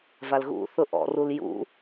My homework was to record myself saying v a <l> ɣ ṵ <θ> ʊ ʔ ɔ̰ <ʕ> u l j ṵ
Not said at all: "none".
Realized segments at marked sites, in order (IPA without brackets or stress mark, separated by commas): l, θ, r